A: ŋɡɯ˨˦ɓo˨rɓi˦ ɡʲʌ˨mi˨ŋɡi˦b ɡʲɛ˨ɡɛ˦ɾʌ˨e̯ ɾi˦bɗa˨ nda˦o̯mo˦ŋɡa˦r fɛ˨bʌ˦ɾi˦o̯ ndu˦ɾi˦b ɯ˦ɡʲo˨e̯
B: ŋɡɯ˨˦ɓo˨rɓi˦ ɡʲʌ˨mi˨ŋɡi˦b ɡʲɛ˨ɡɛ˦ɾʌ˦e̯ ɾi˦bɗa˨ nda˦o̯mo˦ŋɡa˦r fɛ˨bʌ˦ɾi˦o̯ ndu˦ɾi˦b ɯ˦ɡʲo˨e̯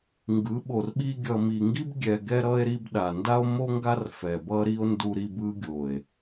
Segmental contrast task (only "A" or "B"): B